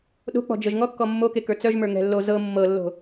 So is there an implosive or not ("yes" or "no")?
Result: yes